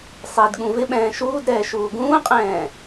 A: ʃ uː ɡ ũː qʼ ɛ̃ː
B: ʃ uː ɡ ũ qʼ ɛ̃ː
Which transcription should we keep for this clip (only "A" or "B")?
A